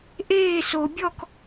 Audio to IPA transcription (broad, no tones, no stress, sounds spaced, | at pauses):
ʔ eː s o bʲ ɔ k